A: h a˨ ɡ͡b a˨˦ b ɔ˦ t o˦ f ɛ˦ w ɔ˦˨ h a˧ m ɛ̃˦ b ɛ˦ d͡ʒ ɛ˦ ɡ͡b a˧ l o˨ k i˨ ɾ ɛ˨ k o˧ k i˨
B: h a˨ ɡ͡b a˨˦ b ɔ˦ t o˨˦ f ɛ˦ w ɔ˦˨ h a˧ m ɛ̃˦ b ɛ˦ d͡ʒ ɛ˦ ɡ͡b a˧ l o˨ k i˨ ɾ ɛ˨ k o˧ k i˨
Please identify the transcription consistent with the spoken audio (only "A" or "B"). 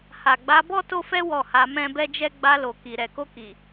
A